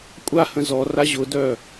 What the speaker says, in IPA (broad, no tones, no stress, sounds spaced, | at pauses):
kʷʼ a h ə̃ z ɔ r a ʑ ʊ d œ